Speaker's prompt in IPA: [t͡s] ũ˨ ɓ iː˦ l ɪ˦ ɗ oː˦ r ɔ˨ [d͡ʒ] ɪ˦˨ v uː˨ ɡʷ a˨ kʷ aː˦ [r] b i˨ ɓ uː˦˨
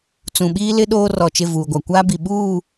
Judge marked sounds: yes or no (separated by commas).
yes, no, no